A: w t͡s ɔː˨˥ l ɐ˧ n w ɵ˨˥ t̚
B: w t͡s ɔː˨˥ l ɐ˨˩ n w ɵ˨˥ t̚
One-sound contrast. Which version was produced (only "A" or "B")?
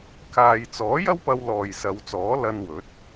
A